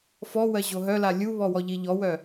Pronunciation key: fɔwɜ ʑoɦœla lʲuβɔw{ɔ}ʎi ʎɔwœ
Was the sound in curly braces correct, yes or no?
yes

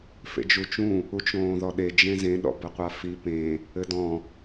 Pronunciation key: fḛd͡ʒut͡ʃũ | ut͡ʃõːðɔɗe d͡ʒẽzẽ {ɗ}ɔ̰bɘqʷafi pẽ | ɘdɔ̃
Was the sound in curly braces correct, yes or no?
yes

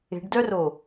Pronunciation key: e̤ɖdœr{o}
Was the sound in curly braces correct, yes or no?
yes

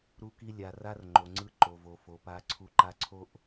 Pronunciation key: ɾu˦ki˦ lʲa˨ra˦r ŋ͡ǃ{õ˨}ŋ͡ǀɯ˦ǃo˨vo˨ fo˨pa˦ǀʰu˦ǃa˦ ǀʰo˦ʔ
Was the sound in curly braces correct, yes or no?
no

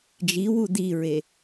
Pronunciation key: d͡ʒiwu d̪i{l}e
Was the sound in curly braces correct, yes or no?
no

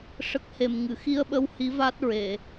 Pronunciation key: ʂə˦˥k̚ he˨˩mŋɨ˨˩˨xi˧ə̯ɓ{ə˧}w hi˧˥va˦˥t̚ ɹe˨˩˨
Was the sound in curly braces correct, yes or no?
yes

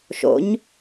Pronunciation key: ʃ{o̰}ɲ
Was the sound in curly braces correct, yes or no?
yes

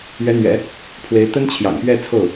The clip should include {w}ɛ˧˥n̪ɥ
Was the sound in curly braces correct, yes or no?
no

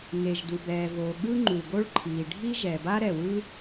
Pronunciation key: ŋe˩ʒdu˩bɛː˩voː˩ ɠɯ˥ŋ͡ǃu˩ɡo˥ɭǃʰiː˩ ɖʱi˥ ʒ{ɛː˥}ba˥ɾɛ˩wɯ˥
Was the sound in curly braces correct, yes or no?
no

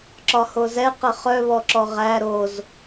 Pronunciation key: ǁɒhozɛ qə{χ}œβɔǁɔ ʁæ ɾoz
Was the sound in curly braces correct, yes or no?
yes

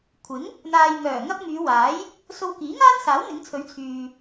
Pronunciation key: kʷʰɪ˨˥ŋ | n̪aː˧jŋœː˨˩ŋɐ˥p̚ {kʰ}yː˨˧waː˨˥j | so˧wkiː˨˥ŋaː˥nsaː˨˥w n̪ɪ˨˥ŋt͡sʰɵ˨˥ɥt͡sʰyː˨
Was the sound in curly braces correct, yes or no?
no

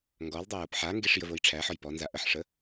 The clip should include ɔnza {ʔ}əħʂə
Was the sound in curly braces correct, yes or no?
yes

